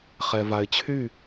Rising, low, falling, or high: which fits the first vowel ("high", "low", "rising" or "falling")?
low